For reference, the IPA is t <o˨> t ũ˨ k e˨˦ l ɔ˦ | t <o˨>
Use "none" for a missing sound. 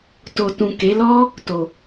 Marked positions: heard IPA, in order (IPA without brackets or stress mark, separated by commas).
o˨, o˨